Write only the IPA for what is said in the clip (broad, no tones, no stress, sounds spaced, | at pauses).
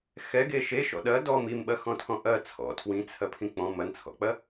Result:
x ɛ ɡ e ʃ e ʃ ɔ̰ ɗ ɐ d ɔ m i m ɓ ɐ x ɔ̃ tʰ ɔ̃ ʔ ɐ t͡sʰ ɔ̰ tʰ w ĩ t͡sʰ ɐ pʰ ĩ k͡p ɔ̃ m ɐ n t͡sʰ ɔ̰ k͡p ɐ